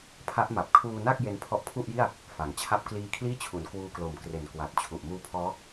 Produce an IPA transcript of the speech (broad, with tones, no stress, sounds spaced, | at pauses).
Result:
pʰ a˦˥ ʔ m a˨˩ p̚ kʰ uː˧ n a˥˩ k̚ j e˦˥ n pʰ ɔ˦˥ ʔ pʰ u˥˩ ʔ j i˥˩ a̯ | f a˩˦ ŋ t͡ɕʰ a˥˩ p̚ k l iː˧ kʰ l iː˥˩ t͡ɕʰ u˩˦ n k w uː˧ k l o˨˩ m k r e˨˩ n k w a˨˩ t̚ t͡ɕʰ u˨˩ ʔ m uː˧ pʰ ɔː˦˥